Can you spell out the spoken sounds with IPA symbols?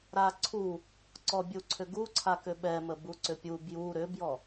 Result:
ɾ a ǀʰ u | ǀ ɔ bʲ u ǀʰ ʏ ɡ u ǀʰ a k ʏ ɓ ɛ m ə b u ǀ ʏ pʲ u b j u ɾ ʏ b j ɔ

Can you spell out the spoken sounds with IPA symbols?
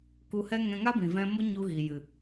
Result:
k u˧ h ɛ˦ ŋ ɛ̃˧ ŋ a˦ b ĩ˨ v ɛ̃˧ m o˦ ɲ u˧ ɣ i˨ j ɨ˨

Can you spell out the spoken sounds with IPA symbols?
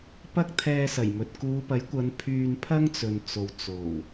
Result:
p ɐ˥ k̚ t̪ʰ ɛː˧ s ɐ˨˩ j m ɵ˨ t̚ k uː˨˧ p ɐ˨˥ j kʷ ɐ˨˧ n pʰ yː˧ n pʰ ɐ˥ ŋ t͡s ɵ˨ n t͡s o˨ w t͡s o˨˩ w

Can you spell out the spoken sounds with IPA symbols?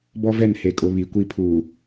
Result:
b ɔ˦ v ɛ˦˨ n h e˨ kʼ ʊ˨ β i˨ kʷ i˦ pʰ uː˨

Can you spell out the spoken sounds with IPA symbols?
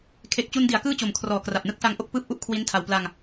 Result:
kʰ e˨˩ k̚ t͡ɕ u˧ n d i˩˦ a̯ k ɯː˥˩ t͡ɕ o˨˩ m kʰ r ɔː˨˩ k r a˨˩ p̚ n ɯ˦˥ k̚ s a˦˥ ŋ ʔ o˥˩ k̚ p ɯː˦˥ p̚ ʔ u˦˥ ʔ kʰ w i˦˥ n tʰ a˧ w p l a˧ ŋ

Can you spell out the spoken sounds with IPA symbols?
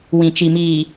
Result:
w ĩ˨ t͡ʃ i˨ m iː˨

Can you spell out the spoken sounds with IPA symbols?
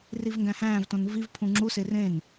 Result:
r i v ŋ ɡ æ̃ h æ̃ː v t õ n v i v pʰ ũ ŋ͡ǁ u s e r ẽ n

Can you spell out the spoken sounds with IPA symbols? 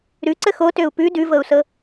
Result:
ɾ ʉ ǀ ə x o t ø u̯ p ʉ d ʉ v ɤ u̯ s ɤ

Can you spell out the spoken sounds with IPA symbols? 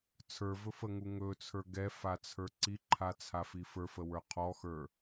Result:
t͡sʰ ə˞ v ɵ f ə ŋ u ŋ ɵ t͡sʰ ə˞ ɡ ɛ f a t͡sʰ ə˞ ǀ i ǃʰ a t͡sʰ a f i f ə˞ f ə w ə˞ qʰ ɔ x ə˞

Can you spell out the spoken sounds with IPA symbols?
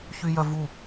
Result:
ç y j œ v u

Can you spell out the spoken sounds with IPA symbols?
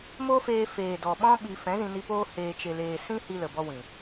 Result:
m o˦ f eː˧ f eː˨ d ɔ˨ ɓ ɔ̃˦ ɓ i˧ f ɛ̃˨˦ z ĩ˧ n i˧ p oː˦ h eː˧ t͡ʃ e˧ l eː˧ s ĩ˦ h i˧ l ə˨ b ɔ˧ w ĩ˨

